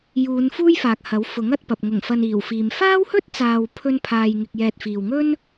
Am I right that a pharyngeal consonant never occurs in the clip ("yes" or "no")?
yes